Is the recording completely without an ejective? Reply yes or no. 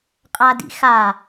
no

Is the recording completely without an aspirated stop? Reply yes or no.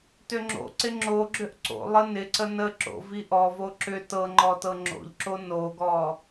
yes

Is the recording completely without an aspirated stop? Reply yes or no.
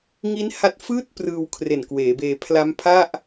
no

